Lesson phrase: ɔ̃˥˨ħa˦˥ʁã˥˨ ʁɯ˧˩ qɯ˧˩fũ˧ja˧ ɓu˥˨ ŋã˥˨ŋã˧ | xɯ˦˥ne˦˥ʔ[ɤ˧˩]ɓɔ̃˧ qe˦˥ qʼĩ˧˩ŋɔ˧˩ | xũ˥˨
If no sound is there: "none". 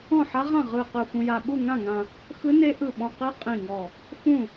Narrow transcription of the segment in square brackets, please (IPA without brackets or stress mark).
ɯ˧˩